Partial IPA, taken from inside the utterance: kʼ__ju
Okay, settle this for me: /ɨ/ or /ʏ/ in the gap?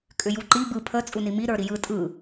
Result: ʏ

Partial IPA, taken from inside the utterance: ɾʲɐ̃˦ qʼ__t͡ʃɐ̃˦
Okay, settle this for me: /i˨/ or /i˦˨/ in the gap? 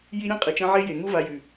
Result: i˨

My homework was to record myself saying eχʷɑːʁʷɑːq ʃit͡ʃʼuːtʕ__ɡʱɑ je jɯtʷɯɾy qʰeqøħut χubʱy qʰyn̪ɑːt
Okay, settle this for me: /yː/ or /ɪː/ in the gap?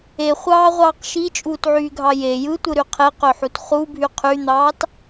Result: yː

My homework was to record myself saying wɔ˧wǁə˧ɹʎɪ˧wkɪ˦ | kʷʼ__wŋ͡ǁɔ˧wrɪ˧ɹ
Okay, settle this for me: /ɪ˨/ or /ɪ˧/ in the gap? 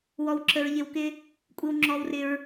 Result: ɪ˧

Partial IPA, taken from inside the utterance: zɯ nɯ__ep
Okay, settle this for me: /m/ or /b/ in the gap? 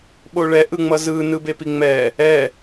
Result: b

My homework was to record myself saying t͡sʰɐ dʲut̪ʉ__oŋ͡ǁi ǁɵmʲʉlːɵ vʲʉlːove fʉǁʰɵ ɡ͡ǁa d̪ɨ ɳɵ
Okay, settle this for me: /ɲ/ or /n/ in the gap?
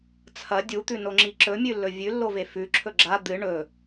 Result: n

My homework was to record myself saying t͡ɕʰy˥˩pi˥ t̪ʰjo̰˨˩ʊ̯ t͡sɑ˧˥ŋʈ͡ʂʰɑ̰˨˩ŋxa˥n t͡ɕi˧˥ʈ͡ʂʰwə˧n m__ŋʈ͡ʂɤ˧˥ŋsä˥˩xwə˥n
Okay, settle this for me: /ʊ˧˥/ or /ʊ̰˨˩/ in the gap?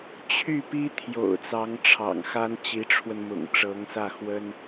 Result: ʊ̰˨˩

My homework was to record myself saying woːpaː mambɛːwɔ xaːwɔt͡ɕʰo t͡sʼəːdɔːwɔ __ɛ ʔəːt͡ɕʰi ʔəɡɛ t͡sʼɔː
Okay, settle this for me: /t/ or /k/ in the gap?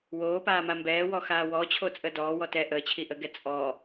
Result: t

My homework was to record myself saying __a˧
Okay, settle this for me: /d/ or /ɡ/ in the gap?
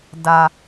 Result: d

